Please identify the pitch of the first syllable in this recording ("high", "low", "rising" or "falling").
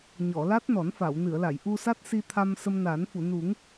low